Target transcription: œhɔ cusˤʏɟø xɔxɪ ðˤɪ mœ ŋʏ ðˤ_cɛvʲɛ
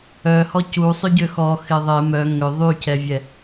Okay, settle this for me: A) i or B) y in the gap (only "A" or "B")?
B